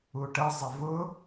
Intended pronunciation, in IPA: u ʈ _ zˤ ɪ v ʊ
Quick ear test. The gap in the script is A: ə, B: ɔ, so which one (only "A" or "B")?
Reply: A